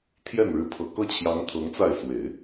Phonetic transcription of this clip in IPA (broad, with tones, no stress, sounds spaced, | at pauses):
t̪ʰ j ɛ˥˩ n ɻ ɻ̩˧˥ pʰ ɤ˨˩ k ɤ˥˩ t͡ɕʰ j ɑ˧˥ ŋ t̪ʰ ɤ˧˥ ŋ t͡s a˥˩ ɪ̯ s w e˨˩˦ ɪ̯